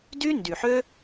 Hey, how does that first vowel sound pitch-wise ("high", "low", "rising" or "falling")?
high